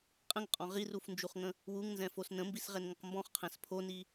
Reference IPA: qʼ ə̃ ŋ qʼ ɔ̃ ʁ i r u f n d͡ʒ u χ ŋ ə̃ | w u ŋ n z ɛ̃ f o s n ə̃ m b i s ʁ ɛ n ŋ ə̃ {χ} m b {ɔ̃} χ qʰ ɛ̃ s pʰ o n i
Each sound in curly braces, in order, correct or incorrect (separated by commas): incorrect, correct